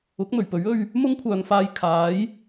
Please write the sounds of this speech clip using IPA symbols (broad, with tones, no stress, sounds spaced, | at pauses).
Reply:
ʊ˨˥ k̚ m ɵ˨˩ ɥ p ɵ˨˥ ɥ ɵ˧ ɥ | m ʊ˥ ŋ kʷʰ œː˨ ŋ f aː˧ j kʰ aː˨˥ j